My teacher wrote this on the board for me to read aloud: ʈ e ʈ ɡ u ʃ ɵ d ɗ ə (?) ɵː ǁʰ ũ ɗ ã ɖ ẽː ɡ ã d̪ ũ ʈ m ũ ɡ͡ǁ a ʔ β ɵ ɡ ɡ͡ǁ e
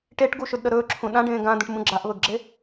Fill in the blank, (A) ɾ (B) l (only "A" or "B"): A